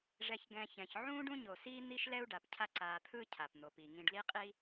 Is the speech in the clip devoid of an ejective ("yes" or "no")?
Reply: no